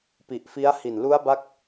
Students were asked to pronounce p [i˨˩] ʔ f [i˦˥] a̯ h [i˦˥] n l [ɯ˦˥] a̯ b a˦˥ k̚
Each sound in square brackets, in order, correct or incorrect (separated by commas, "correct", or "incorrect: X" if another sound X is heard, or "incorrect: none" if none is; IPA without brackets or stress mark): correct, correct, incorrect: i˨˩, incorrect: u˦˥